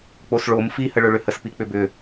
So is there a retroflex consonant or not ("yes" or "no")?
yes